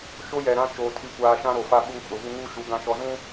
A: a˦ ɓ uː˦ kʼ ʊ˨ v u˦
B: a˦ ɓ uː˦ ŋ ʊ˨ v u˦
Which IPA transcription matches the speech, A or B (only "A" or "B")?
A